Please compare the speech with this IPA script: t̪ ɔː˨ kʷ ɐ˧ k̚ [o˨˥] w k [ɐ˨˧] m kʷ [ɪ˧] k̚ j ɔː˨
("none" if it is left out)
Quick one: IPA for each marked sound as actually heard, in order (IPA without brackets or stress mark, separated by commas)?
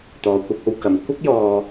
o˧, ɐ˨, ɪ˧